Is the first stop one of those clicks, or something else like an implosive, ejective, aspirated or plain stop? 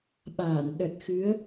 implosive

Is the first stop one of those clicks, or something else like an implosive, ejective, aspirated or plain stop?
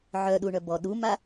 implosive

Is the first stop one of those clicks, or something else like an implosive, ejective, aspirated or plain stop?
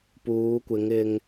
plain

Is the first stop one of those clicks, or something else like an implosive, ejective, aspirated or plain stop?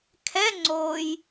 aspirated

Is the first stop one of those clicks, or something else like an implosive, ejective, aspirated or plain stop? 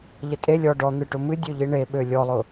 ejective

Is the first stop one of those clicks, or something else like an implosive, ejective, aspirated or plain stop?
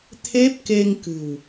aspirated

